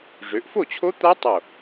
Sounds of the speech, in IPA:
ʐ ø˩˧ ʔ f o˥˩ t͡ɕʰ o˦˥ t̪ a˦˥ tˤ o˧˩

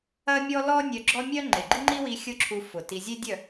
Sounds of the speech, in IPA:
ɐ˦ mʲ ɔ˦ l ɔ˦ nʲ œ˧ ɡ͡ǁ ɔ˦ mʲ œ˦ ŋ͡ǃ e˨ ɡ͡ǃ i˦ ŋ͡ǃ i˦ w i˧ xʲ ʊ˦ ǁʰ u˧ f ʊ˨ t i˧ zʲ e˦ dʲ œ˦˨

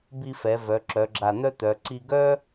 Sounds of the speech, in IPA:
b i˧ f ɛ˩˧ v œ˩˧ ǁ œ˩˧ ɡ͡ǁ a˧˩ n̪ œ˥ t̪ œ˩˧ ǀ i˧ ɡ œ˥

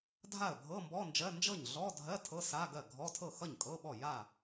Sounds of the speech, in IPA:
dʱ a˥˩ ə̯ bʱ ɤ˧˥˧ m b ɔ˧˥˧ n d͡ʒ ɜ˧˥˧ n d͡ʒ ɤ˥˩ ɲ ɮ ɔ˧˥˧ dʱ ɜ˧˥˧ tʰ ɤ˧˥˧ s a˧˥˧ ɡ ɜ˥˩ ɡʱ ɔ˧˥˧ tʰ ɤ˥˩ x ʌ˥˩ ɲ kʼ ɤ˧˥˧ ɓ ɔ˥˩ j a˥˩

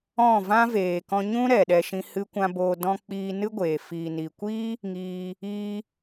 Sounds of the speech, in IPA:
ɔ̃˦˨ v ã˦ v eː˨ k ɔ̃˧ ɲ ũ˦ ɾ ɛ˨ ɗ ɛ˧ ʃ ĩ˧ h ɨ˦ kʷ ã˦ b oː˧ d ɔ̃˦ k͡p iː˧ n ɨ˦ ɡʷ eː˨ f iː˨ n i˨ kʷ iː˦ | ŋ iː˧ | iː˦

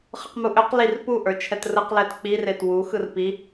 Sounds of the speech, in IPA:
χ ɯ q m u ʔ ø q l i r p u ʔ ə˞ t͡ʃʰ ɛ t r ɯ q l ɛ t k͡p i r e t w u x ɯ r p i

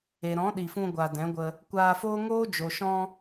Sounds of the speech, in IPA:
e˨ ɾ ɔ̃˨˦ ɗ i˨ f ũ˧ ɡʷ a˨ d ɛ̃˨˦ ɡʷ ə˧ | kʷ aː˧ f oː˦ ŋ oː˦ d͡ʒ o˨ ʃ ɔ̃˧

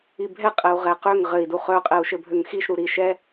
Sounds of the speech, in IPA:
i bʱ ɛ qʼ ɛ u̯ ʁ ɛ q ø ŋ ʁ ɘ i̯ d u χ œ qʼ ɛ u̯ ʃ ɘ bʱ ø ŋ x i ʃ ɾ u ɾ i ʃ ɛ

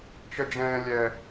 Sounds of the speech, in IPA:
t͡ʃ ə d͡ʒ ɛ̃ː lʲ ɛ

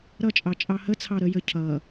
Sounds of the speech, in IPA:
ɾ ʌ t͡ʃʼ ɑ t͡ʃʼ ɑ h ə t͡sʰ ɑ ɾ ə j ə cʰ ʌ

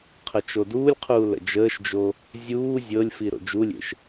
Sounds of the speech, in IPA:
qʰ ə t͡ʃ o d uː lʲ qʰ uː l ə̰ d͡ʒ əː ʃ d͡ʒ o | zʲ uː zʲ ɤ lʲ f i ɾ o̰ d͡ʒ u lʲ ḛ ʃ

